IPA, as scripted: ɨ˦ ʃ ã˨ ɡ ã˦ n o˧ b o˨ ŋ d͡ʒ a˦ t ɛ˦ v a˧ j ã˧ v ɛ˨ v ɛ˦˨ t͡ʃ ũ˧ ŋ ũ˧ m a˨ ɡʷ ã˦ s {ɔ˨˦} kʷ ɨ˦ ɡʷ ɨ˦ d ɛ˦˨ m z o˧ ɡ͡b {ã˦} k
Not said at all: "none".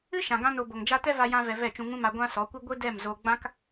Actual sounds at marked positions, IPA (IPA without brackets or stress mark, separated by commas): ɔ˨˦, ã˦